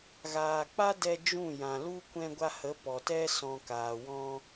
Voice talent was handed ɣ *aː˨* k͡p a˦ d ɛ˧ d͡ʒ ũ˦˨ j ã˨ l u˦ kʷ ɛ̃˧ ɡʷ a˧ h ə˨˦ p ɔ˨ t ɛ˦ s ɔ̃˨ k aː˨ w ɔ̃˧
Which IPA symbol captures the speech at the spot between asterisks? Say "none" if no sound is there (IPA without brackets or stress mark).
aː˨